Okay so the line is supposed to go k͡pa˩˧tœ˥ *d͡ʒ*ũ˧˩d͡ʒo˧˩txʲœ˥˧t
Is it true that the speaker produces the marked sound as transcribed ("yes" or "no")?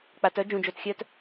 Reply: yes